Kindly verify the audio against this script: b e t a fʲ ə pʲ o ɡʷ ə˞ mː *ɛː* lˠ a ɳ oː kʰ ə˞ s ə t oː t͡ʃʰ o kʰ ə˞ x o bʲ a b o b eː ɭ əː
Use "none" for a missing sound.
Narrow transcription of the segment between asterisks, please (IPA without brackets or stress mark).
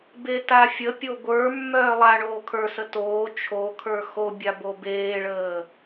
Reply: œː